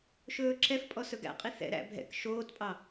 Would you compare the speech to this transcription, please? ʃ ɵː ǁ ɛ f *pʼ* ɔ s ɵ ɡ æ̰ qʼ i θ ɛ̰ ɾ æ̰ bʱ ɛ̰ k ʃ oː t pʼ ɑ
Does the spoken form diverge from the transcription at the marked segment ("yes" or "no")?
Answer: no